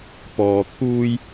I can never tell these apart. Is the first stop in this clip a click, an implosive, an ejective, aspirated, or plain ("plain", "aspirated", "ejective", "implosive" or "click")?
plain